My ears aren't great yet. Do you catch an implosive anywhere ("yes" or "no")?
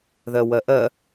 no